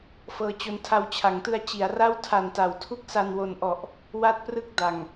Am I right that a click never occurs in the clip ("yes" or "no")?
yes